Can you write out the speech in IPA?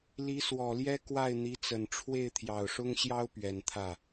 li˧˥swɔ˨˩ljɛ˥ kwa˥˩ɪ̯n̪i˧˥t͡sə˨˩n ʈ͡ʂʰwe˥˩ɪ̯ t̪ʰjɑ˨˩ʊ̯ʂʊ˥ŋɕjɑ˥ʊ̯ pɥɛ˨˩n t̪ʰä˥˩

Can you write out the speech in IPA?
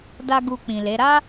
da˦ɡu˧k͡pĩ˨le˨˦ ɾa˦

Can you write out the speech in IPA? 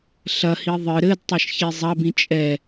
ɬɐhi ðˤɨ ɾɘdtˤɐʃçi zˤɐbĩ t͡ʃʼɛ

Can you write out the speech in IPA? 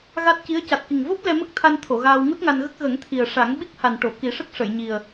ɣa˦˥t̚ci˧˥ə̯ ca˨˩t̚ki˨˩ŋvo˦˥p̚ lɛ˧mə˦˥k̚t̪ʰa˧n t̪ʰo˨˩˨ɣaː˧w ŋu˦˥t̚ŋa˧nɣə˦˥k̚ ɣə˨˩˦ŋt̪ʰi˨˩ə̯ʂa˨˩˦ŋ ɓi˦˥k̚ha˨˩nʈo˨˩˨ ki˨˩˦ʂə˦˥k̚ ʂə˨˩˨jɲi˨˩ə̯

